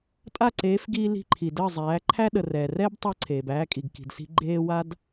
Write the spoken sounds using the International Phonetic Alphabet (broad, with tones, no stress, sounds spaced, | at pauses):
tʼ a˦˨ ǀ eː˨˦ f ɡ iː˧ l i̤˧ ǃʰ i˨ d əː˦˨ zˤ æː˨˦ ǃʰ æ˦ ɗ ə˨ r ɛː˨ r ɛː˦ b tˤ əː˦ ǀʰ eː˨ b æː˧ kʼ i˨ ɡ k i̤˨ d s i̤˧ ɡ͡ǃ eː˧ w a˦ d